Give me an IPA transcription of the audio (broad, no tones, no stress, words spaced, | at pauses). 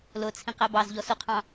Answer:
lʊt͡sʰĩ qæbɑzʎɔ sʊqʰɑ̃